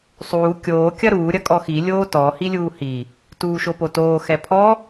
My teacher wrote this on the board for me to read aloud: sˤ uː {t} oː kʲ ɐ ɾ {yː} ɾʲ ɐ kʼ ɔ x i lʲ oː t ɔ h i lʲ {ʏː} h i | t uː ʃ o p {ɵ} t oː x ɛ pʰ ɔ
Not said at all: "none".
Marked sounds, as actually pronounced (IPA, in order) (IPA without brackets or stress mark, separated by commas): kʲ, uː, uː, o